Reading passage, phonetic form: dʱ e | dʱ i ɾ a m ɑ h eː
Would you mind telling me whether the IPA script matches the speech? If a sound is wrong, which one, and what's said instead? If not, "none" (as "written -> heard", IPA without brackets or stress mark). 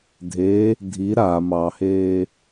none